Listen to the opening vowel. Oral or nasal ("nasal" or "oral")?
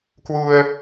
oral